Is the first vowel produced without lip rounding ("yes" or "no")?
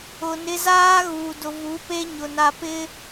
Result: no